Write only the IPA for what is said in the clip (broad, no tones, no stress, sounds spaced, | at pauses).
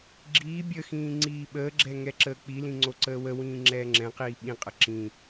ɡ͡ǁ iː bʲ ə x ĩː ŋ͡ǀ iː ɓ əː ɡ͡ǁ ɛ ŋ ɛ ǁ əː k͡p i l ĩ ŋ͡ǀ o ǀ əː w ə w ĩː ŋ͡ǁ ɛː ŋ͡ǁ ɛ̃ q iː ɓ ĩ qʼ ə ǁ ĩ